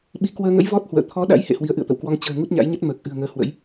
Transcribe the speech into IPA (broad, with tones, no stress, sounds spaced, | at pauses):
ɓ i˨˦ k w əː˧ ŋ ə̰˧˥ j v ɔ˦˥ t̚ h w ə̰ː˧˨ t̪ʰ ɔ˨˦ ɗ a̰˧˥ j h ḛ˧˨ h w i˨˦ ə̯ ʔ ɨ̰˧˨ ə̯ t̪ ə̰˧˨ w k w ɔ˧ ŋ t͡ɕ ə̤ː˨˩ ŋ u˦˥ t̚ ɲ a̰˧˥ j ɲ ə˦˥ t̚ m əː˨˩ k̚ ʔ ɨ̤˨˩ ə̯ ŋ əː˨˦ h w ə̰˧˥ j